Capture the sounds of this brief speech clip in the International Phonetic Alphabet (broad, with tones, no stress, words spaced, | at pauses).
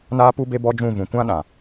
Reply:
naː˦pu˦be˦ bɔ˦d͡ʒũ˦˨vũ˨ kʷã˦ɗã˨